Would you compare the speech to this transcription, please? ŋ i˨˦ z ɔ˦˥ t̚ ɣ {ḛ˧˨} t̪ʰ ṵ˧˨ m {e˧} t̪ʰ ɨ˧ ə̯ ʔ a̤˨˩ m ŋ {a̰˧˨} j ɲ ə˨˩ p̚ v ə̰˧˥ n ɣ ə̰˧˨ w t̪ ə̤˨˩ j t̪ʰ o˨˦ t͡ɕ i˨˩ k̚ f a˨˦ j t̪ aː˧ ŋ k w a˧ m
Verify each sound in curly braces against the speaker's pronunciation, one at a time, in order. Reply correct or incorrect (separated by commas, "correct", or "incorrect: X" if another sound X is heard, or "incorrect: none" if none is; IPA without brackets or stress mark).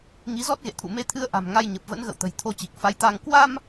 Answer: correct, correct, incorrect: a˧